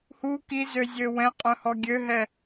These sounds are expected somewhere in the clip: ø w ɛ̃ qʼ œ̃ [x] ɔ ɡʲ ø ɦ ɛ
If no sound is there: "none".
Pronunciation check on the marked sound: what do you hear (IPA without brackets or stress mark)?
h